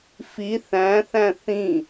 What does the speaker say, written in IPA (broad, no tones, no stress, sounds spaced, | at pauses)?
f i θ æ̃ θ æ̃ θ ĩ